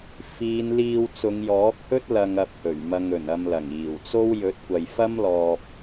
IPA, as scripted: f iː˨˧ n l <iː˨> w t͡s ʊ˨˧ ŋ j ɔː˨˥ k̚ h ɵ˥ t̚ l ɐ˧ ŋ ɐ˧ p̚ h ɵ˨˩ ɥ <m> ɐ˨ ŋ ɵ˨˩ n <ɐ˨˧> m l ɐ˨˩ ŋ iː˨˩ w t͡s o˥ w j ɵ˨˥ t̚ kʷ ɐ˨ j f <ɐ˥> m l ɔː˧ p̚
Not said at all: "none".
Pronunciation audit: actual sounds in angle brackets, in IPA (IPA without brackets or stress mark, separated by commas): iː˧, m, ɐ˨, ɐ˥